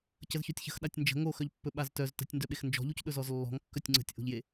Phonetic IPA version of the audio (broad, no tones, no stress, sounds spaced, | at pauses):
c ə z ç ɵ tʲ ç ə̤ x ɗ a tʲ n d͡ʒ ə̤ ŋ o x œ ʎ pː ɵ ɓ a z t œ z t ə̤ tʲ n d œ ɓ e x n d͡ʒ ɔ̤ ʎ u c ɗ ɵ z ɔ z lː ɔ̤ ŋ kː œ tʲ ŋ͡ǀ ə̤ tʲ ʔ o̤ ʎ j e